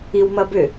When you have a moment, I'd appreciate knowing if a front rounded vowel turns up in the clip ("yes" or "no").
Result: yes